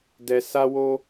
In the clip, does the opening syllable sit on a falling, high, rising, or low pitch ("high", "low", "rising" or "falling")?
low